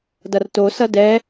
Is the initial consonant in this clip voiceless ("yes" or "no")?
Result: no